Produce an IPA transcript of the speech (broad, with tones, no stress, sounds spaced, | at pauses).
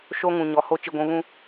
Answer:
ʃ o˦ ŋ ũ˨ ɲ ɔ˨ h o˦ t͡ʃ i˨ ɡʷ ũ˨˦ β ũ˦